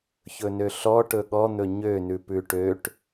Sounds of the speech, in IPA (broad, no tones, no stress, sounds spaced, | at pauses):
ç ɵ n ø ɬ ɔ ʈ ɵ ɠ ɔ n̪ ɵ ɲ ø n ʉ p ʉ ʈ ø ʈ